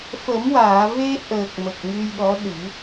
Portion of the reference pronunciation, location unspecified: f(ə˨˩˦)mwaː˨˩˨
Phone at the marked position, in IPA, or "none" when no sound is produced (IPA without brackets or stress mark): ə˨˩˦